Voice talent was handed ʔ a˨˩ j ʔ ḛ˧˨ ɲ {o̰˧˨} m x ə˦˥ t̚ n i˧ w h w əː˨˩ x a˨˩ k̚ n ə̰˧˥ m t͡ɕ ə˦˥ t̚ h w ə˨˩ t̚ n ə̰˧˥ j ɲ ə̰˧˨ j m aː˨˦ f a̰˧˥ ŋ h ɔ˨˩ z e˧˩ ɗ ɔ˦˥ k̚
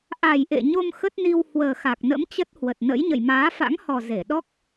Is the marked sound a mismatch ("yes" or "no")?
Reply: yes